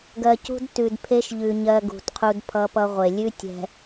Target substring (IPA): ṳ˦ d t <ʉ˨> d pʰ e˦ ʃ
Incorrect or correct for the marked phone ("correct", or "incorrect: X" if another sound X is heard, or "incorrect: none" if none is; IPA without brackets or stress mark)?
correct